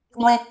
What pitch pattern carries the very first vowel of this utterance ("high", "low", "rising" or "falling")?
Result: high